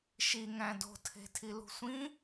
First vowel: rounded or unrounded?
unrounded